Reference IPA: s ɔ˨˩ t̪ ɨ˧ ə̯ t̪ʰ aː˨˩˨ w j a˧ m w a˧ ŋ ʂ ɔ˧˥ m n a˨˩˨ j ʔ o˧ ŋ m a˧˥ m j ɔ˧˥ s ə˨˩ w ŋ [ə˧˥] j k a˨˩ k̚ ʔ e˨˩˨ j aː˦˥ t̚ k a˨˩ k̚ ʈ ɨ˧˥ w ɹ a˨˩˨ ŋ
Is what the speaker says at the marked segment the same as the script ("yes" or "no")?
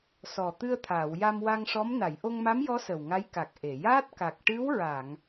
no